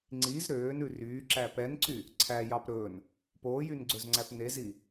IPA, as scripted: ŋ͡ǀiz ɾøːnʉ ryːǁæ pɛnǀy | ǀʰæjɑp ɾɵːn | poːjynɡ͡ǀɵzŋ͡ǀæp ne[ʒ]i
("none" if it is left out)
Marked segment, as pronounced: z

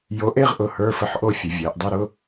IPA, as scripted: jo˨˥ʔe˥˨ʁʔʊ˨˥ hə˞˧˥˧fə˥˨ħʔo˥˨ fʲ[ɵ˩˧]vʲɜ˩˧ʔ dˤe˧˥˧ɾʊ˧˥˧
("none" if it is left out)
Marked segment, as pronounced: ʊ˩˧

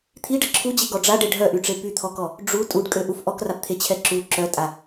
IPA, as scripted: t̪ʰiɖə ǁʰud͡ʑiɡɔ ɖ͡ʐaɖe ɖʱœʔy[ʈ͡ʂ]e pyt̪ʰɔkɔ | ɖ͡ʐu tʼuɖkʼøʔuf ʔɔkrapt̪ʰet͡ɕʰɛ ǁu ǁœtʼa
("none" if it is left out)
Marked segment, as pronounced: ʈ͡ʂ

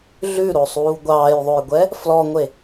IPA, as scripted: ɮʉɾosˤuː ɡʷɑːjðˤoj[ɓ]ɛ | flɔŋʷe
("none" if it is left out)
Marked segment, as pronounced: ɡʷ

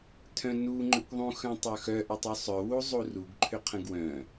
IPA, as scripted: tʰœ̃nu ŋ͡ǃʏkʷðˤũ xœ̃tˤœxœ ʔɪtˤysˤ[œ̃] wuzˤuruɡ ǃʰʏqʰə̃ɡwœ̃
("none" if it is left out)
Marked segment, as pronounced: œ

